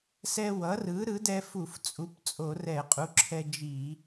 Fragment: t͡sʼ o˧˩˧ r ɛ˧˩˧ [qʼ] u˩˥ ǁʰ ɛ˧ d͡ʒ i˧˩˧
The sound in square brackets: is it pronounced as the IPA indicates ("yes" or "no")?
yes